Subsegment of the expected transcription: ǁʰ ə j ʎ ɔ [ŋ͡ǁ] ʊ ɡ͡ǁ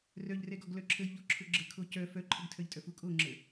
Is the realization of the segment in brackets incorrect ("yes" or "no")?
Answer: yes